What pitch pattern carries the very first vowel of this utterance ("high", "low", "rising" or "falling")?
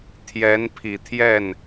rising